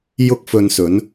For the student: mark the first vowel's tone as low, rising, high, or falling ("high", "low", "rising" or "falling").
high